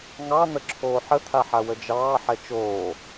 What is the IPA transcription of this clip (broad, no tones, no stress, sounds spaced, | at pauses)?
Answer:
ŋ ɑ n̪ ə ǁʰ oː ħ ə t̪ʰ a ħ a w ə d͡ʒ ɑː ħ ɛ t͡ʃ oː